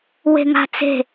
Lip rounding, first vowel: unrounded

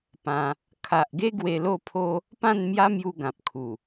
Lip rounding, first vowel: unrounded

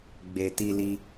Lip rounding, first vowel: unrounded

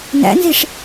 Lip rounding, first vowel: unrounded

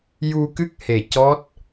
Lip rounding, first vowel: rounded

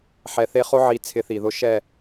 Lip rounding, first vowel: unrounded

